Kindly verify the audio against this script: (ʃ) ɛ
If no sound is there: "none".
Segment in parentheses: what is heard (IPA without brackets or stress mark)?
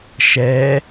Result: ʃ